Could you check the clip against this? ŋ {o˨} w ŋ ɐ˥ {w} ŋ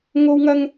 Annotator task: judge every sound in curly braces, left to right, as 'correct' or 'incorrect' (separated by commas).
incorrect, incorrect